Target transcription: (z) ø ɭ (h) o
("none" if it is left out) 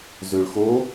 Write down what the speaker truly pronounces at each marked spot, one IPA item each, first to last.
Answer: z, x

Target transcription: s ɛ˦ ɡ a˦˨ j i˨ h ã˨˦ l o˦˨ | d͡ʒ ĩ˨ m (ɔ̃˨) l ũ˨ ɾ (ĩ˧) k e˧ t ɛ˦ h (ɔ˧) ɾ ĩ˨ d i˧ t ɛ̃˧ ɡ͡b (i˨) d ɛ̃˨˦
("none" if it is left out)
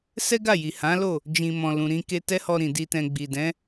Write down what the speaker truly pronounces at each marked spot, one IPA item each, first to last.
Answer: ɔ̃˨, ĩ˧, ɔ˧, i˨

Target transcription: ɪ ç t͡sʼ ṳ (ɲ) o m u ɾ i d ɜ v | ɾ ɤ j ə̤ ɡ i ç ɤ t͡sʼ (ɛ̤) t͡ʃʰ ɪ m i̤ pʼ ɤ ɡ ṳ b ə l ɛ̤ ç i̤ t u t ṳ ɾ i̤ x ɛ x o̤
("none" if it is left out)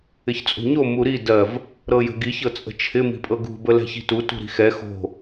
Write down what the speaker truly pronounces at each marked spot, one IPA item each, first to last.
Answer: ɲ, ə̤

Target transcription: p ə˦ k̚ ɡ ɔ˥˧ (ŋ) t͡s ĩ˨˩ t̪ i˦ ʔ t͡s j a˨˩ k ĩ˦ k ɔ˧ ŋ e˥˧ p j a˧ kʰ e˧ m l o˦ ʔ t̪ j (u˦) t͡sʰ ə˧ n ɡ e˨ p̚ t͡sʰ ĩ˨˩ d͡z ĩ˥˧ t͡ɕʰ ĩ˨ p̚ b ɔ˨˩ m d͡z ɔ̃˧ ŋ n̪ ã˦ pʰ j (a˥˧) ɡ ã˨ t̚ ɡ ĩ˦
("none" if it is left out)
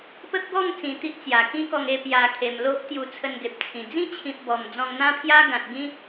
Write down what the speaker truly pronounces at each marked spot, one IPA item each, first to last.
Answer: ŋ, u˧, a˦

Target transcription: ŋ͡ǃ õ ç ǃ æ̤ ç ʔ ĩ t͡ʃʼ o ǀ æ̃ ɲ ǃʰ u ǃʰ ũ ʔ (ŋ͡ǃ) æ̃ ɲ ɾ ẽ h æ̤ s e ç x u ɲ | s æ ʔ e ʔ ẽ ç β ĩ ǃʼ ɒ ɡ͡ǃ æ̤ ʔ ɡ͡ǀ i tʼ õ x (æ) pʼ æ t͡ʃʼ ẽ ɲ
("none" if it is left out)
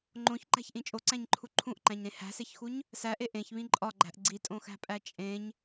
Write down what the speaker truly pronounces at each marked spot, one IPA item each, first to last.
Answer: ǃ, æ̤

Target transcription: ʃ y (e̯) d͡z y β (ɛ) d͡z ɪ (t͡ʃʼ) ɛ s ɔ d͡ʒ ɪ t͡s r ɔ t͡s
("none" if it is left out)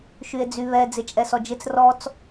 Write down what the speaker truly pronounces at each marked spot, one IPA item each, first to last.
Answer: e̯, ɛ, t͡ʃʼ

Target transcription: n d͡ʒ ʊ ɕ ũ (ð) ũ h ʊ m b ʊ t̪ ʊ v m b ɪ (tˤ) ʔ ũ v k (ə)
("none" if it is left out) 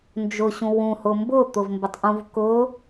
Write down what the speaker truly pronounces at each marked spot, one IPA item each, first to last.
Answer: w, tˤ, ʊ

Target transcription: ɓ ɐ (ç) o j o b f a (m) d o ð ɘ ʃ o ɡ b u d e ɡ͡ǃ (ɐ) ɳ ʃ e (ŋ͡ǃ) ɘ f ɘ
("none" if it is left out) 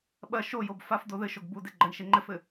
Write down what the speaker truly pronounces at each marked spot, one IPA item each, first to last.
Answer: ʃ, f, ɐ, ŋ͡ǃ

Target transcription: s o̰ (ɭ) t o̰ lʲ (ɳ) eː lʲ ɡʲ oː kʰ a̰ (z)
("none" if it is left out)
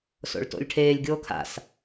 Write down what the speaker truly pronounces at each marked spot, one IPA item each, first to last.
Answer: ɭ, ʈʰ, s

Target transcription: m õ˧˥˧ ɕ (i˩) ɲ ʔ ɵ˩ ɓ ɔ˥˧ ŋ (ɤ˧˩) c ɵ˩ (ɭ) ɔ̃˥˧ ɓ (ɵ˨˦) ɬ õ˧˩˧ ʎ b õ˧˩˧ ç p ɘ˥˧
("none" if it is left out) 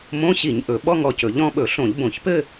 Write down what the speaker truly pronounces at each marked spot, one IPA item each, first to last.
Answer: i˧˩˧, ɔ˧˩, ʎ, ɵ˧˩˧

